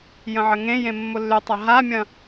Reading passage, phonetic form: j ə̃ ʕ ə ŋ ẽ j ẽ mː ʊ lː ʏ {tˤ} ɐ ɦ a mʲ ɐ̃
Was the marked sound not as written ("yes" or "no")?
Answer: no